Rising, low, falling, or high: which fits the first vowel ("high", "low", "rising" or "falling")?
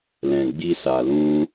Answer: low